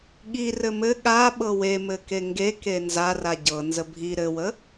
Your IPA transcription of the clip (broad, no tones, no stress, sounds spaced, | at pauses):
ɠ i r ɘ m ɘ ɠ a ɓ ɤ w e m ɘ k e ŋ ɡ e k e n z a r a ɟ ɤ n z ə bʱ i ɾ ɘ w ə